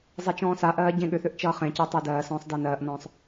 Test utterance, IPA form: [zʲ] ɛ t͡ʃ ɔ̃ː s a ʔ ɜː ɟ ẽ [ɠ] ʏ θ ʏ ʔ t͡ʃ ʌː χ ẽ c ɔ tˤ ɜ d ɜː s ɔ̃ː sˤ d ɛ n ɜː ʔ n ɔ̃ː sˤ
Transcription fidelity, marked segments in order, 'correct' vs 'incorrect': incorrect, correct

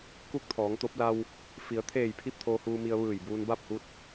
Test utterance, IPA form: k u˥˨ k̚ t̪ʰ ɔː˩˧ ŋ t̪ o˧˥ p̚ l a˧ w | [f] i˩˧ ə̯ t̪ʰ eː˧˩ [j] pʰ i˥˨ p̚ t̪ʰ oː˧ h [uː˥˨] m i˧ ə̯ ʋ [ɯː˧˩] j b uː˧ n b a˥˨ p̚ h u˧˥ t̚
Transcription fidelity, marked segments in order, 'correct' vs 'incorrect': correct, correct, incorrect, correct

